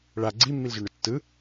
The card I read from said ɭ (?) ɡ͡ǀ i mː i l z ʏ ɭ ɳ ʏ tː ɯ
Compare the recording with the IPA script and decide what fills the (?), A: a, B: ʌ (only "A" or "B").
A